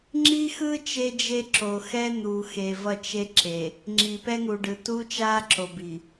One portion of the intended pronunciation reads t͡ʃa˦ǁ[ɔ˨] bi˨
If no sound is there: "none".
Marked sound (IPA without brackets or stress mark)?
o˨